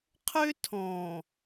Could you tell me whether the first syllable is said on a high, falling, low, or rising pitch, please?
high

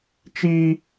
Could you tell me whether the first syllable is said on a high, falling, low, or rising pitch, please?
high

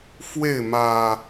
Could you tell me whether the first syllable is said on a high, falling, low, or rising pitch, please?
falling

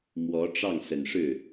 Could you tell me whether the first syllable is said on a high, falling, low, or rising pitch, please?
rising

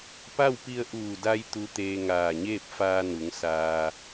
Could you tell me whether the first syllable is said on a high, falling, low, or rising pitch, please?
falling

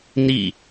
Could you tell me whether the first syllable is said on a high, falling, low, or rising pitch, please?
falling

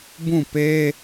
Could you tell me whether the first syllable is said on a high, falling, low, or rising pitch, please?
falling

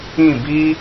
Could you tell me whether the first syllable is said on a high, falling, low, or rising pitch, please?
falling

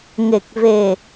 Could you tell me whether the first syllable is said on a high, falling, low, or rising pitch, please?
low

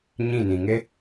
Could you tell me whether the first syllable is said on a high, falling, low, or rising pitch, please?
falling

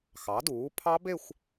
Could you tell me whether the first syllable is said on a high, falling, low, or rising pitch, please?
rising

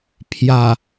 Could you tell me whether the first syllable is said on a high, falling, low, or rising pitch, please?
low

